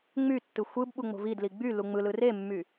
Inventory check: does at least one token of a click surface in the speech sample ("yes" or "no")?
no